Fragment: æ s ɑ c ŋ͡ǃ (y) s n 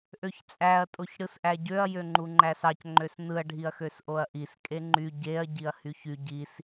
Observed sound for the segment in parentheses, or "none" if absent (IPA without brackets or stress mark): ø